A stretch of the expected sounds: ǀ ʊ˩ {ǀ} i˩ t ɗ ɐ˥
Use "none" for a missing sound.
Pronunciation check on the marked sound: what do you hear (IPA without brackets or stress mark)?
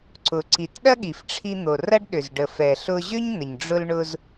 ǀ